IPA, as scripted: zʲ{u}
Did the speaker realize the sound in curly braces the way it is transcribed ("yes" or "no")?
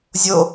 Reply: no